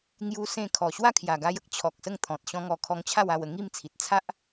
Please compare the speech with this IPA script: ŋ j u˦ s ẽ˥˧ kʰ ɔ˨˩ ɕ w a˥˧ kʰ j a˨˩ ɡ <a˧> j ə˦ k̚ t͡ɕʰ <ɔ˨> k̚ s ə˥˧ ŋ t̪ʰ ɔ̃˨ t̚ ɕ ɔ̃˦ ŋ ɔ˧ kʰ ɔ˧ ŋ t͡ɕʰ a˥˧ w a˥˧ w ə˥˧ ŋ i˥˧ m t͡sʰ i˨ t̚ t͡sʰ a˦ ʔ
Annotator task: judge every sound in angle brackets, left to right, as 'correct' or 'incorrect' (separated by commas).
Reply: correct, correct